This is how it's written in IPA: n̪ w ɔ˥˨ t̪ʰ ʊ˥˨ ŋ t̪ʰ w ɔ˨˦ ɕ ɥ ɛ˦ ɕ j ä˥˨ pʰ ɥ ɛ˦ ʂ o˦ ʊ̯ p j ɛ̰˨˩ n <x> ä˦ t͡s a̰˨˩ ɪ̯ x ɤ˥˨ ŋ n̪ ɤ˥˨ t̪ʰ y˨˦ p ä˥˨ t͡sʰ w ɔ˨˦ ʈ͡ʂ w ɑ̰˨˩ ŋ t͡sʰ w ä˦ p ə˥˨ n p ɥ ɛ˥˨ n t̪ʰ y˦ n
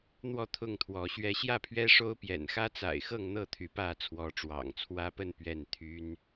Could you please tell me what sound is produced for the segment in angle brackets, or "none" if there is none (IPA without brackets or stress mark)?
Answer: x